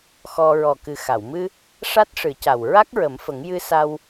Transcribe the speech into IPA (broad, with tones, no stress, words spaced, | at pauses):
xɔ˧ ɹɔ˨˩kɨ˨˩xa˨˩˨wmɨ˧ | ʂa˦˥t̚ʂɨ˨˩˦ca˨˩w ɹa˦˥k̚ɹə˨˩˦mfə˨˩˦ŋ jɨ˧sa˧w